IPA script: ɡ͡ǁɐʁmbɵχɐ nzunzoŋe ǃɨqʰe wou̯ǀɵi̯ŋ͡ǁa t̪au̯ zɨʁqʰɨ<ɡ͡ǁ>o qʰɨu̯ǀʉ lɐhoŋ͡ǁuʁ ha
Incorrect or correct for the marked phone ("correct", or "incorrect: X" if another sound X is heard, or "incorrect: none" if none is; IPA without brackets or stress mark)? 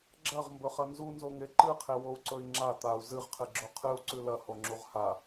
correct